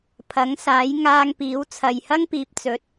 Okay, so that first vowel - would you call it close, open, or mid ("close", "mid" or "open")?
open